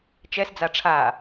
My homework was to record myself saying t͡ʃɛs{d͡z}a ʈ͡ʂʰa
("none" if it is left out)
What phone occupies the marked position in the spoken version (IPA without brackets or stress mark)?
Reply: d͡z